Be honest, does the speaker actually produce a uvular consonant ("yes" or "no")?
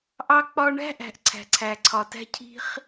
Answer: yes